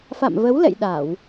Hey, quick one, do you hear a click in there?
no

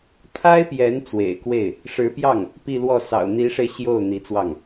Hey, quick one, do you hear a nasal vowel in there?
no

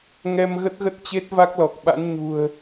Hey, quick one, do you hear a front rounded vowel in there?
no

